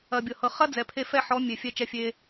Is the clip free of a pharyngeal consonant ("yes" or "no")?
no